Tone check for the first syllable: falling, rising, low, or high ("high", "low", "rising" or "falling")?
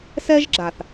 high